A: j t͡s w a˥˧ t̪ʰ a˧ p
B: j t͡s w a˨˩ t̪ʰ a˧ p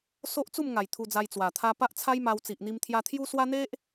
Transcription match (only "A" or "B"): B